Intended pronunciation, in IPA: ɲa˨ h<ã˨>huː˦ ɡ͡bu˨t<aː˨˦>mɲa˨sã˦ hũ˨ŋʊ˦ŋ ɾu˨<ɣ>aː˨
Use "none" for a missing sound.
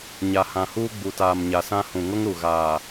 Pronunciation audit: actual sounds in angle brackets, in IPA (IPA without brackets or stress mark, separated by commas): ã˨, aː˨, ɣ